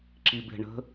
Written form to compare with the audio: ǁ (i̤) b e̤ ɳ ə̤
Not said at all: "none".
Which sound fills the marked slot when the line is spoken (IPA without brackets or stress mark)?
i